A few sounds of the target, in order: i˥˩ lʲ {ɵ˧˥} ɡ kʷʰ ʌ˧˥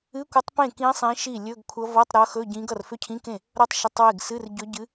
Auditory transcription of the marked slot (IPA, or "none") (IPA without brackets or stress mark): ɵ˧˥˧